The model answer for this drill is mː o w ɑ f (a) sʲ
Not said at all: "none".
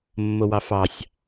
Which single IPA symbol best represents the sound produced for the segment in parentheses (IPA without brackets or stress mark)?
ɑ